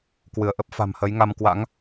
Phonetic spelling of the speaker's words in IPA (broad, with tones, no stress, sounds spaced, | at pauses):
k w ɨ˧˩ ə̯ ʔ ə˦˥ p̚ f a̤˨˩ m h ə˨˦ j ŋ a˧ m k w a̰˧˥ ŋ